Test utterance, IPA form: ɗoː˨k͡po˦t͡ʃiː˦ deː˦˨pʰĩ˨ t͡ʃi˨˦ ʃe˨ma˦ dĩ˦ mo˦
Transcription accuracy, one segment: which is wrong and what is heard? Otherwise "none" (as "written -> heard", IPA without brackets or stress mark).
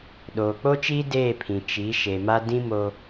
none